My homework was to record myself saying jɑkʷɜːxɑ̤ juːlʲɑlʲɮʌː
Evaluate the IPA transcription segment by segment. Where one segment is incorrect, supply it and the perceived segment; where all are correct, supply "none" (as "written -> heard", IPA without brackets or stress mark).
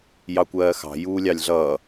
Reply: none